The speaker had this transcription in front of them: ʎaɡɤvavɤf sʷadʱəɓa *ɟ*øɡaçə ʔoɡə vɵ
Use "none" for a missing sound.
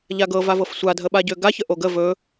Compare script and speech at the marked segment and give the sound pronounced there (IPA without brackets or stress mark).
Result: ɟ